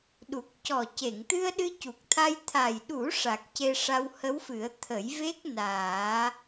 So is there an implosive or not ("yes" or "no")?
yes